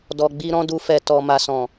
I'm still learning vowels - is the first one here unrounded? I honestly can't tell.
no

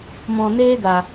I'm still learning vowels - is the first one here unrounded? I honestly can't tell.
no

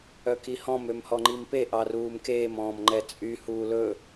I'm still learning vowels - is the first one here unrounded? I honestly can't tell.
no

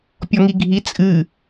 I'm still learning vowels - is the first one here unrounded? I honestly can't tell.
no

